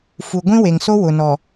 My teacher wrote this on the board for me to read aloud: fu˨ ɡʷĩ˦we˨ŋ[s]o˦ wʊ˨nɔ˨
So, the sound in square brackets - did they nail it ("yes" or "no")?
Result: yes